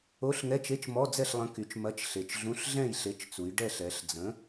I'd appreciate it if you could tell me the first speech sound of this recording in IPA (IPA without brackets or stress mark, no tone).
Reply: o